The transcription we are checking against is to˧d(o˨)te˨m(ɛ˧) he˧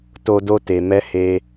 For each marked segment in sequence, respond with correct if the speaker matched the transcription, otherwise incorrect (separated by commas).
incorrect, correct